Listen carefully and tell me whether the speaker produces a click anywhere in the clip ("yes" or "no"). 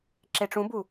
yes